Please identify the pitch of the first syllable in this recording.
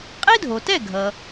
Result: high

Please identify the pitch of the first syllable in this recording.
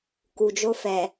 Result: low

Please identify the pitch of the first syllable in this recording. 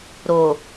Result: low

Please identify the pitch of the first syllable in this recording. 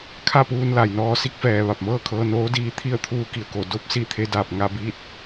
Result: falling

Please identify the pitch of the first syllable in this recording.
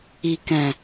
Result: low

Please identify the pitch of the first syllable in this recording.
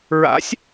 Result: rising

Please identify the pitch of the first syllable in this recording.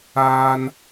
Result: low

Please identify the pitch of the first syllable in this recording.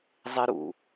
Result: high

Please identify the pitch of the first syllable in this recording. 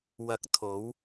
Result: rising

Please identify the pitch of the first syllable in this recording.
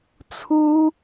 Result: high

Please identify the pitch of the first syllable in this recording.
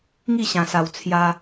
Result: falling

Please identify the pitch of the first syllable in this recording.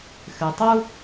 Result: low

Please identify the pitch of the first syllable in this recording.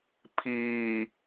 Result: low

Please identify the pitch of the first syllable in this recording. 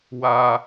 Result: high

